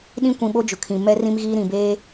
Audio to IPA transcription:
ɗ ĩ˦ kʷ ĩ˨ ɓ o˦ d͡ʒ ʊ˨ kʰ ĩ˨ m ɛ˦ r ĩ˦ m ɣ iː˦ ɾ ĩ˨ b eː˦

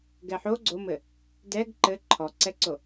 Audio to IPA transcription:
ɡ ɛ ħ o ɡ͡ǀ o m ɘ | d ɛ ɡ ǃ ɘ ǃʰ ɔ ǀ ɛ ǀ o

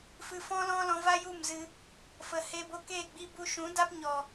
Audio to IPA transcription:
f ɨ˨ f ɔ̃˧ l ɔ̃˧ l ɔ̃˧ v a˦ j u˦˨ m z ɨ˧ | f ə˨ h eː˧ b o˧ k eː˦˨ ɡ͡b i˧ b u˧ ʃ ũ˨˦ d a˦ p ɲ ɔ˨

